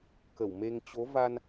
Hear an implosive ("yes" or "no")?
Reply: no